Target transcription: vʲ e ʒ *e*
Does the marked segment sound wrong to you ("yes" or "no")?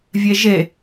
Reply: no